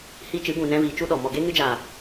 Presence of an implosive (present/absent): present